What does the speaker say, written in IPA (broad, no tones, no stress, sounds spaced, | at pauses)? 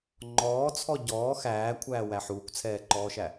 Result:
ŋ͡ǃ ɔː t͡sʰ ɔ ɟ ɔː x æː kʷʰ æː w æ ħ uː kʷ t͡sʰ ɛː ǃ ɔː ʃ æ